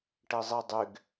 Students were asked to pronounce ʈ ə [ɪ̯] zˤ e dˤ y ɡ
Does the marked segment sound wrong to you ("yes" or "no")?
no